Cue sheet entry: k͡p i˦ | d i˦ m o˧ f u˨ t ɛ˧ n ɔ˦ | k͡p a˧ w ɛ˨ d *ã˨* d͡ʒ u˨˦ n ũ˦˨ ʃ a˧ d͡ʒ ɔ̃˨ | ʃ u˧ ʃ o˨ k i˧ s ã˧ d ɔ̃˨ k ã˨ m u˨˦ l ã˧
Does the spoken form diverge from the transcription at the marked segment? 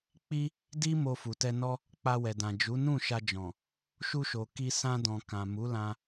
no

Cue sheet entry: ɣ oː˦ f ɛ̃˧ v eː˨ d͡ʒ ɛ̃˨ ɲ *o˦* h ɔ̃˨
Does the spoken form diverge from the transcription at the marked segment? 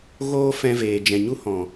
yes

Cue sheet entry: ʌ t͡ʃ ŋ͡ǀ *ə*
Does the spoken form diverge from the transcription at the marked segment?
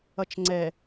yes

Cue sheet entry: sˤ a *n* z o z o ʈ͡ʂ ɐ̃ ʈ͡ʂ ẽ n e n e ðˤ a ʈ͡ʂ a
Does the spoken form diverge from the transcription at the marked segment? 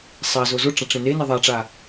yes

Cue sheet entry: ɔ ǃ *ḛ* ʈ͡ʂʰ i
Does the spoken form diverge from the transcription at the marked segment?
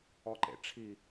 no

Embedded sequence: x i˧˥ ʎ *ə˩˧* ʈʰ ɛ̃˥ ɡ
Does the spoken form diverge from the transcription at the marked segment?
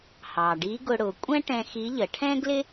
no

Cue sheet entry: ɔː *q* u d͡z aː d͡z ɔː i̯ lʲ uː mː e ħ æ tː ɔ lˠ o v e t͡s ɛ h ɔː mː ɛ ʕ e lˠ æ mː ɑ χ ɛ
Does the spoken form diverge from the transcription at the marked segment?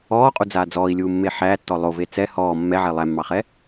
yes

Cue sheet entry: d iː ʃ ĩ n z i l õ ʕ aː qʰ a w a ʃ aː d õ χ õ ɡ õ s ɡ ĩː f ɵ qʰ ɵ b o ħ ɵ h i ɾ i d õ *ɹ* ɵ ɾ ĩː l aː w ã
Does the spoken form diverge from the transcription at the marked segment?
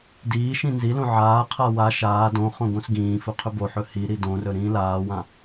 yes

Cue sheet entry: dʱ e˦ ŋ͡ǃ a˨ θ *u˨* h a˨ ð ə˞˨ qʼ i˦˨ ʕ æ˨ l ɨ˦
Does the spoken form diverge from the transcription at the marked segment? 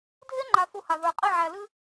no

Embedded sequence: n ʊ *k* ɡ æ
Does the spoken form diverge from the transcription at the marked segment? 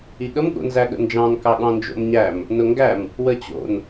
yes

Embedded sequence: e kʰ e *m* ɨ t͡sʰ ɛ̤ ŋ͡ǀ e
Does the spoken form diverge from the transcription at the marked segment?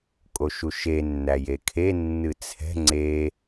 yes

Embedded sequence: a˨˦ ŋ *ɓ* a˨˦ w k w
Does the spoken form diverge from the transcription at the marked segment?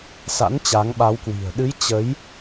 no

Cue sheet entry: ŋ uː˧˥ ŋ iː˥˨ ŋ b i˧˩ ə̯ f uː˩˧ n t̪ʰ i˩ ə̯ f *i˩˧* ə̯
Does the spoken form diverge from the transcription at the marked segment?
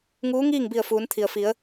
no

